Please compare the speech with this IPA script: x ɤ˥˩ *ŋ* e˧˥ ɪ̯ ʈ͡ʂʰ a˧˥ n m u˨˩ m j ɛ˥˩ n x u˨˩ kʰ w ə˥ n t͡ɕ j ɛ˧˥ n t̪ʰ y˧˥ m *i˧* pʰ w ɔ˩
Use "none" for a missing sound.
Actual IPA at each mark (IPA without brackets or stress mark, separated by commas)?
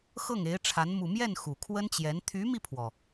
ŋ, i˧